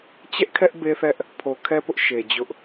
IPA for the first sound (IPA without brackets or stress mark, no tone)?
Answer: t͡ɕ